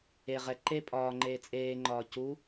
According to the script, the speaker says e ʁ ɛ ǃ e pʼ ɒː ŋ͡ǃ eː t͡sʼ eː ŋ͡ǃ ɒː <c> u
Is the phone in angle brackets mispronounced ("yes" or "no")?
no